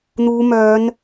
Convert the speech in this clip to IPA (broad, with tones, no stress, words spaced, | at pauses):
n̪uː˨˧mœː˨˧n